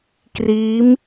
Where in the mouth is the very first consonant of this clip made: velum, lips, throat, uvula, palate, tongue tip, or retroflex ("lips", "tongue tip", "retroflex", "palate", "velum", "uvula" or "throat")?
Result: velum